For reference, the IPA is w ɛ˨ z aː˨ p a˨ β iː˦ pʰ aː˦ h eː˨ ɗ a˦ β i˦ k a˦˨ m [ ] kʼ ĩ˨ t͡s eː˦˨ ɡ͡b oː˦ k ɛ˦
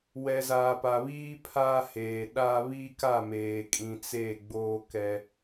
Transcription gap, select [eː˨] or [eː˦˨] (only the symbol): eː˨